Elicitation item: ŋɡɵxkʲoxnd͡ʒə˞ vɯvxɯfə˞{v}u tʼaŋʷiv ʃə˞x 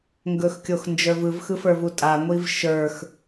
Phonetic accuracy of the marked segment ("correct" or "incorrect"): correct